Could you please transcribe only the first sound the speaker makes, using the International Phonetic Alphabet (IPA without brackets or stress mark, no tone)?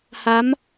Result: h